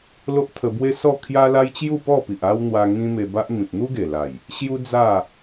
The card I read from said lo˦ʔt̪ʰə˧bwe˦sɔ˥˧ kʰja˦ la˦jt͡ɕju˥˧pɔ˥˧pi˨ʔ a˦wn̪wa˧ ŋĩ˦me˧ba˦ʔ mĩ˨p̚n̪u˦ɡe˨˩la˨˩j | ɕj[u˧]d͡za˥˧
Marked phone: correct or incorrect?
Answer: incorrect